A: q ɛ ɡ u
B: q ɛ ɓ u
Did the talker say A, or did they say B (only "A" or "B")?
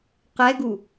A